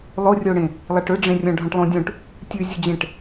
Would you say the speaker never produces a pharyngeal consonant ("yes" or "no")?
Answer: yes